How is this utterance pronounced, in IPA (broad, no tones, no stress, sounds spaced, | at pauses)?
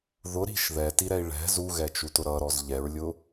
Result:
ð ʊ ɾ i̤ ʃ ð ɛ t i ɾ ɛ i̯ ɭ ɛ̤ z u ɣ ɛ t͡ʃ u t ʊ ɾ ʌ ɾ ɔ z ʎ ɛ ɹ lʲ ʊ